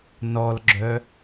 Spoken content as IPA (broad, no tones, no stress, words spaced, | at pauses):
nɔlɡ͡ǁœ